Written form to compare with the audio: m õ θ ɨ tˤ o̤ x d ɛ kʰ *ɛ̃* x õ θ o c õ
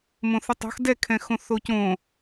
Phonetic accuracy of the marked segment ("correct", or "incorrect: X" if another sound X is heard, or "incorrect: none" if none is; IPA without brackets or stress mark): correct